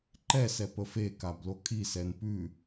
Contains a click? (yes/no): yes